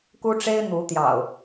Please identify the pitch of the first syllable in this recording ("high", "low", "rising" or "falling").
high